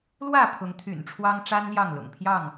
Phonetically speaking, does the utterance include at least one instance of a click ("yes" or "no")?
no